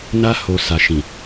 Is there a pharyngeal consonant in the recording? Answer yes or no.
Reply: no